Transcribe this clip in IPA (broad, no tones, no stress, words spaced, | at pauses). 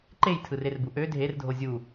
ǃejtʰɯrerbu ʔø dʱerdʱo zʲu